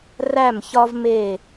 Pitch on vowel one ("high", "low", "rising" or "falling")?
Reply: falling